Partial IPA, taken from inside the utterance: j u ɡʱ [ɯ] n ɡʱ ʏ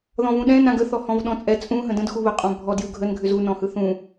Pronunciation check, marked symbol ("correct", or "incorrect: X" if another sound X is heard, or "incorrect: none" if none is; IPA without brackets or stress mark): incorrect: ə